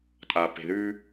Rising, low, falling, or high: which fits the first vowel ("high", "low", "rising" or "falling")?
low